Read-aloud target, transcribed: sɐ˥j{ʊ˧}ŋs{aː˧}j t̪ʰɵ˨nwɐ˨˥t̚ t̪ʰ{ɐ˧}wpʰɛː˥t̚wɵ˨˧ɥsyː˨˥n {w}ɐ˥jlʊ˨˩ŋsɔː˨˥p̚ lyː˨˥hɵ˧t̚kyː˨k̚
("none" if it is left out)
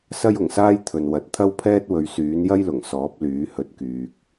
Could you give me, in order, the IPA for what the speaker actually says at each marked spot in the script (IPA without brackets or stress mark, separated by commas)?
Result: ʊ˨˩, aː˥, ɐ˥, j